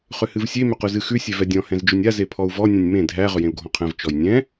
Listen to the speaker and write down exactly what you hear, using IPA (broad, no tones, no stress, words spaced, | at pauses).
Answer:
χʏhɨvsʲe mʏqʉzɨxʉ sʲɛvɛdʲɔ̃ hɛ̃zd͡ʒʏnʲa zepʰɔu̯vɔ nʲɛ̃nʲmẽ dʱæ ʁʏjẽu̯ɡʱɔ̃qʰɛ̃v t͡ʃɔjnʲɛ̃